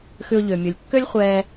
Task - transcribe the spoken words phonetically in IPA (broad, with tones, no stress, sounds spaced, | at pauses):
x ʉ˧ ʊ̯ ʎ ø˩ mʲ u˩ lʲ kː ø˥ lʲ χʷ ɛː˧